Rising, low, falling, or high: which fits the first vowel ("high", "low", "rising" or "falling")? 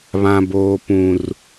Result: high